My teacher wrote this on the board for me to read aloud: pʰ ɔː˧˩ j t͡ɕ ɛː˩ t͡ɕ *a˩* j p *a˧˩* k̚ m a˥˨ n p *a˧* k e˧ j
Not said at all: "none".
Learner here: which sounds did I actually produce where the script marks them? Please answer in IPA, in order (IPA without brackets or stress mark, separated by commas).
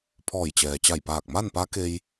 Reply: a˧˩, aː˧˩, a˧˥